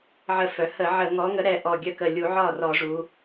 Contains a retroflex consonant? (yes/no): yes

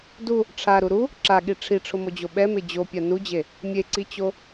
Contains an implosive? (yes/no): yes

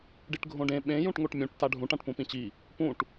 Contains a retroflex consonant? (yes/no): yes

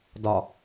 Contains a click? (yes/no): no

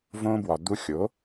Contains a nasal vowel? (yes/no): yes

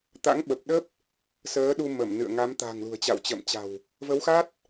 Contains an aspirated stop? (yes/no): no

